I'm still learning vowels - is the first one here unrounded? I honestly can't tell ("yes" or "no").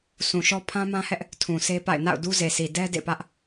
no